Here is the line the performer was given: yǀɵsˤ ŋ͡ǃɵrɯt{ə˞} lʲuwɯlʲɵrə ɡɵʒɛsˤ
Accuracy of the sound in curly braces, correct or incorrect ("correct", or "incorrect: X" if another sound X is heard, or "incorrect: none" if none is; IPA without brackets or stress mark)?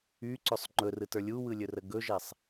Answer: correct